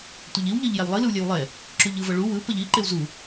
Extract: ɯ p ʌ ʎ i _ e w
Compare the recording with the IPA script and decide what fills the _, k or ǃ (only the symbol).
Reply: ǃ